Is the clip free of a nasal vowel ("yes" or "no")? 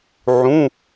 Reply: no